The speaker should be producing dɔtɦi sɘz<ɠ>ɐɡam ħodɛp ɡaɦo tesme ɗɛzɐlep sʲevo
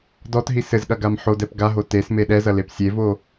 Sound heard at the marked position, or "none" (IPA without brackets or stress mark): ɠ